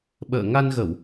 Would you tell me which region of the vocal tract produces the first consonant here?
lips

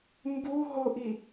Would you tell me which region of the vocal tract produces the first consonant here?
lips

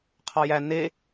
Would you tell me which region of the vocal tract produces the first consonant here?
uvula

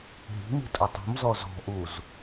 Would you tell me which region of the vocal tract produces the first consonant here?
throat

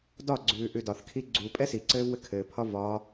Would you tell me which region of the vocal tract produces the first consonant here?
tongue tip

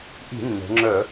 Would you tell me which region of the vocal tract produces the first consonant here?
throat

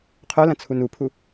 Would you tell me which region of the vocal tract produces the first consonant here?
uvula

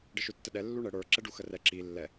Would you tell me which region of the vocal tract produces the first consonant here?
retroflex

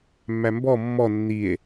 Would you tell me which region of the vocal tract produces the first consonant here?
lips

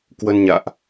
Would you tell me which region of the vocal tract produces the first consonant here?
velum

